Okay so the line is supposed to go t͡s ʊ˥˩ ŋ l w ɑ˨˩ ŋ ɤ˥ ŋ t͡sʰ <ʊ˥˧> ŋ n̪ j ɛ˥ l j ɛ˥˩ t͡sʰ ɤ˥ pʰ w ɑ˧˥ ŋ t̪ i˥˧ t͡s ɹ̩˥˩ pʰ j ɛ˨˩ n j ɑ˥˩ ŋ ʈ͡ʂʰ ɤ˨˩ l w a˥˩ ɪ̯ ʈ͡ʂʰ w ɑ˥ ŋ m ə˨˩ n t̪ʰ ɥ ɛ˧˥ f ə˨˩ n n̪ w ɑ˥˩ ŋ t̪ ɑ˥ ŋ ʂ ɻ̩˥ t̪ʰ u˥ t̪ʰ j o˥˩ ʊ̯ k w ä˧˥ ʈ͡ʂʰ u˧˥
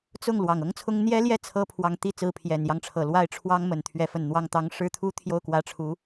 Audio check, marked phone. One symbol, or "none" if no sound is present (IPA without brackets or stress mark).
ʊ˥